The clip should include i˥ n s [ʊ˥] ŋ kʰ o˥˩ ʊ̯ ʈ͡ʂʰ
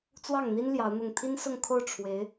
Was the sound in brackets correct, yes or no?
no